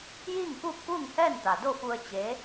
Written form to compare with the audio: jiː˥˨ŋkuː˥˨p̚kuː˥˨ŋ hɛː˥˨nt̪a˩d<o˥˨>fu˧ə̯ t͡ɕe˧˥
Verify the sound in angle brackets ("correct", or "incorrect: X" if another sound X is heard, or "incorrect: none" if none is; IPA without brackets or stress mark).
correct